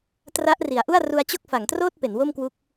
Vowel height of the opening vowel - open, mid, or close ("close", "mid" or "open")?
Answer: open